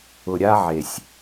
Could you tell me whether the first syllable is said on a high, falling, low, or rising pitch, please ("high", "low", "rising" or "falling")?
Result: low